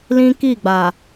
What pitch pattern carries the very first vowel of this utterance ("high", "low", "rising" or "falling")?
high